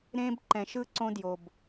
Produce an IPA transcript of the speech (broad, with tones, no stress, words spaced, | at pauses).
ɾẽ˧b ǃɛ̃˨ʃɯ˦ ǀõ˦djo˨b